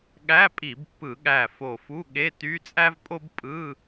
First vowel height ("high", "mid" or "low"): low